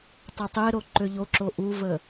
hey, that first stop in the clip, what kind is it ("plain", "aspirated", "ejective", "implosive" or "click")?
plain